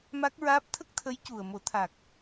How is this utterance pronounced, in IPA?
ma˦˥k̚ɹaː˦˥p̚ t̪ʰə˦˥k̚t̪ʰə˧˥j cu˨˩ə̯mo˨˩˦t̪ʰa˨˩k̚

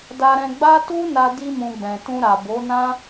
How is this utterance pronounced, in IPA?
da˧ɾɛ̃˧ɡ͡ba˦ tu˦na˧ di˧mũ˨ ɡ͡bɛ̃˨tũ˧ɾa˨bo˨˦ nã˦

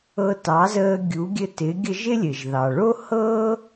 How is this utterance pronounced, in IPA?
ɤ˧tɑ˩˥zəː˧ ɡʲu˩˥ɡʲɘ˧tɪ˩˥ ɡʲə˧ ʒɪ˥lʲɘ˩ʒðɑ˩ ɭo˥hɤː˥

